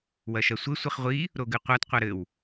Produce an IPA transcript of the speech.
w ɐ ʃ ɐ sʷ ɘ sʷ i χ ʁʷ i | ɾ o ɡ ɨ qʷ a t qʷ a ɾ ɘ w

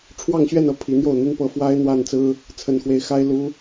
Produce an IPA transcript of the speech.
ʈ͡ʂʰ w ɑ˥˧ ŋ ɕ ɥ ɛ˥˧ n ɤ˥˩ pʰ i˧˥ n̪ j o˥˩ ʊ̯ n̪ y˥ n p ɤ˥˩ f w a˥ ɪ̯ n̪ w a˥˩ n t͡s ɹ̩˥ | t͡sʰ ə˧˥ n x w e˧˥ ɪ̯ x a˥ ɪ̯ l u˥

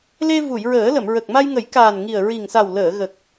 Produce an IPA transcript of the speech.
l e˧ v u˨˩˨ j ɹ əː˨˩˦ l ə˨˩˨ m ɹ ə˨˩ k̚ m a˧ j ŋ ə˨˩˦ j k aː˨˩ n ŋ i˨˩ ə̯ ɹ i˨˩ ŋ s a˨˩ w l əː˨˩˨ ɣ ə˨˩ k̚

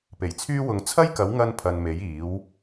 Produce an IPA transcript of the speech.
p e˨˩ j t͡sʰ yː˥ w ʊ˨˧ ŋ t͡sʰ ɐ˥ j k ɐ˨˥ w ŋ ɐ˧ n pʰ ɐ˨ n m e˨˥ j iː˨˥ w

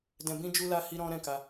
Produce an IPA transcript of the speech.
d ɛ̃˨ b ĩ˧ d͡ʒ u˧ l a˧ h i˦ ɾ ɔ̃˦ ɾ ɛ̃˦˨ k a˧

